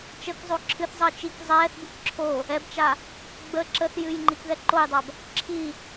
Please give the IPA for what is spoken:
t͡ʃ ə k zˤ o ǁʰ ɨ θ zˤ əː t͡ʃ i k zˤ ɛː θ b ɨ k ǁʰ o | ɛ b t͡ʃ a | ɡ͡b ə ǁ ə θ j ɨ j ŋ͡ǃ i k ð ɛ ǃ o j dˤ a b | ǁʰ i

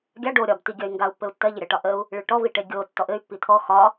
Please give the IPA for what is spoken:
ɡʲ a ɖ o ɾʲ ɒ b t i ɡʲ ɜ y̯ ŋ ɡ a u̯ pː ɘ u̯ tː ɜ ʎ ə ɾʲ a ʈ ɒ ʔ ə u̯ | ɭ i ɭ ʈ ɔ v i ʈ e ɡʲ o tː ɔ ʔ ɘ y̯ pː i t̪ʰ ɔ x ɒ

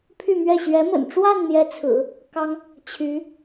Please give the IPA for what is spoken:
pʰ y˥˧ m ɥ ɛ˥˩ ɕ ɥ ɛ˧˥ m ə̰˨˩ n ʈ͡ʂ w a˥˧ n n̪ j ɛ˥˩ t͡sʰ ɹ̩˨˩˦ | k ɑ˥ ŋ | t͡ɕʰ y˧˥

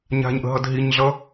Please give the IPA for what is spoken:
ɲ a̤ ɲ ʔ ə̤ ɦ ʌ d ɦ i ɲ ɮ ʌ

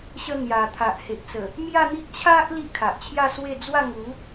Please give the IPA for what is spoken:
ɕ ə˧ n̪ j a˨˩ t̪ʰ a˨ ʔ h e˨ ʔ t͡s ə˨˩ | m j a˥˧ n̪ i˦ ʔ t͡ɕʰ a˦ ʔ l i˦ ʔ kʰ a˨ ʔ t͡ɕʰ j a˥˧ s w e˥˧ d͡z w a˥˧ ŋ u˨˦

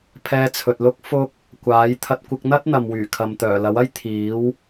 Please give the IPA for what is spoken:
pʰ ɛː˧ t͡sʰ ɵ˨ t̚ l ʊ˥ k̚ f ʊ˥ k̚ | kʷ aː˨˥ j t̪ʰ ɐ˧ t̚ kʷ ɪ˧ k̚ n̪ ɐ˥ t̚ n̪ ɐ˨ m w yː˨˩ kʰ ɐ˨ m t̪ œː˨˩ l ɐ˨˥ w ɐ˥ j t̪ʰ iː˨˥ w

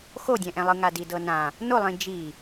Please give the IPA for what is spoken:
x o dʲ ɛ̃ ʔ ɛ̃ lˠ ɯ ŋ a d i d ɤ n ã | n o lˠ ĩ d͡ʒ i

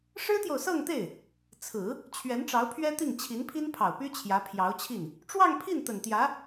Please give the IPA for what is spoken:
ʂ ɻ̩˥ t̪ j o˨ ʊ̯ s ɤ˥˧ ŋ t̪ e˥˩ ɪ̯ | t͡sʰ ɹ̩˨˩˦ | t͡ɕʰ ɥ ɛ˧˥ n ʈ͡ʂ ɑ˧˥ ʊ̯ pʰ ɥ ɛ˥ t̪ i˥˩ ŋ t͡ɕʰ i˧˥ n pʰ i˥ n pʰ ɑ˨˩ ʊ̯ p y˥ t͡ɕʰ j ä˧˥ pʰ j ɑ˧˥ ʊ̯ t͡ɕʰ i˥˩ n | ʈ͡ʂ w ɑ˥˧ ŋ pʰ i˥˩ n t̪ ə˨˩ n t̪ j ä˧˥

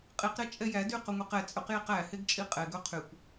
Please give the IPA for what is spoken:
qʼ i q ɾ ɛ t͡ʃʼ ɛ j æ d y q ɵ ŋʷ e q ɛ t͡sʼ ɵ q j i q æ h e ɡ t͡ʃʼ i qʼ ɛ ɡ ɵ qʰ y kʷ

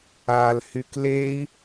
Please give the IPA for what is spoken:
a l h y k l e i̯

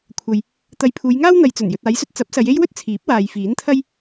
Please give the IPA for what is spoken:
kʷʰ ɐ˨ j | t̪ ɐ˨ j pʰ uː˨˧ j ŋ aː˥ w n̪ ɐ˨ j t͡s ɵ˨˩ n j ɵ˨ t̚ aː˨˧ j s ɵ˧ t̚ t͡s ɐ˨˥ p̚ s ɐ˨˧ j e˥ j w ɵ˥ t̚ t͡sʰ iː˨˥ p̚ w aː˨ j f iː˨˥ n t̪ʰ ɐ˥ j

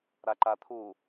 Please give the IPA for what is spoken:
ɾ a ǃ a t̪ʰ u

